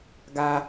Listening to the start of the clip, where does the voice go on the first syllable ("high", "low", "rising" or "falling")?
high